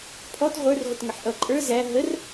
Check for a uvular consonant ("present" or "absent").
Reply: present